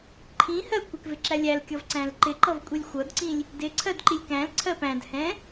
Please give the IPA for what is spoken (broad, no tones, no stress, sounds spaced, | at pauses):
ǃʰ ĩ h ɜ kʷ ɪ k v ɪ ǁ æ lʲ æ l kʲ ʌ v ǀ æ̃ l ǃ ɪ ǃ ʌ v kʷʼ i lʲ xʷ ʌ d ǀ ĩ lʲ | d ɪ ǀʰ ɜ d ǃ i lʲ k æ̃ l ǀʰ ɜ p æ̃ d h ɛ̃